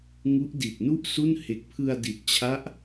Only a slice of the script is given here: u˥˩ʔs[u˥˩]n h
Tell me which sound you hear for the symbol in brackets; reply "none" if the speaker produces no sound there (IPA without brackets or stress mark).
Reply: u˥˩